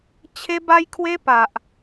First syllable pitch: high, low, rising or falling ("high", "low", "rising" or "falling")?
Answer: high